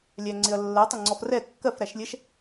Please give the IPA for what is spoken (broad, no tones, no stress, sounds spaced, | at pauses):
lʲ æ ŋ͡ǀ ɪ ɐ̯ lː ɜ tˤ ɪ ŋ͡ǀ ɔ f r ɛ kː ɜ f ɾ æ ʃ lʲ ɛ ʃ